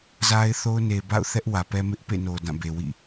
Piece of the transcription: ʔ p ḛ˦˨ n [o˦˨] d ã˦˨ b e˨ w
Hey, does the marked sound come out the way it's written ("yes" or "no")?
no